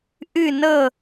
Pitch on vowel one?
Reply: falling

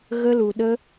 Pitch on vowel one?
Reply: high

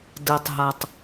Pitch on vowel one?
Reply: low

